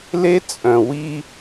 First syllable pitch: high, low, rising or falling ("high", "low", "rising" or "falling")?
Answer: high